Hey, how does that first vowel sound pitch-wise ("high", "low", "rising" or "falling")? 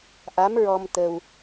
rising